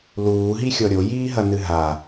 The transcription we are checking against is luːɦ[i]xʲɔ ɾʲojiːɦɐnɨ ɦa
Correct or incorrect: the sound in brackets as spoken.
correct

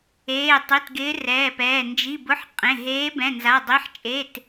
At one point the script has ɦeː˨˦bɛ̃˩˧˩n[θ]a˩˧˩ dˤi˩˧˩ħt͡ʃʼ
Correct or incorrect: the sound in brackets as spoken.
incorrect: z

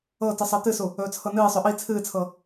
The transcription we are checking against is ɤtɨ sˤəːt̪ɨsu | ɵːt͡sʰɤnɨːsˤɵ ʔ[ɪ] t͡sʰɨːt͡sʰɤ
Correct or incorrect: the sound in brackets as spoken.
incorrect: i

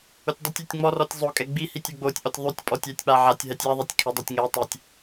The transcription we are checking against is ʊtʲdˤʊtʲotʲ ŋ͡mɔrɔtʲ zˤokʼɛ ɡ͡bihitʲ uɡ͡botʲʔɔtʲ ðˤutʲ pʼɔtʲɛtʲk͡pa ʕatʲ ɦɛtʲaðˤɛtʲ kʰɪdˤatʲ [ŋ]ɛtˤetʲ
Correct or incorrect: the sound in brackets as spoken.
correct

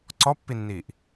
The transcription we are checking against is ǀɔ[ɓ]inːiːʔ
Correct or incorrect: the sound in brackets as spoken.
incorrect: pː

